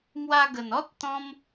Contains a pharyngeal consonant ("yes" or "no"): no